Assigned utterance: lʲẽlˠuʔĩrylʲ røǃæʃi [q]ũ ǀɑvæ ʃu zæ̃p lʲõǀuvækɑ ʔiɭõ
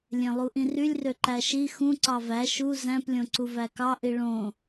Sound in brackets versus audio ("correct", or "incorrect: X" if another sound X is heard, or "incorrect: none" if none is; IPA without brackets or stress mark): incorrect: x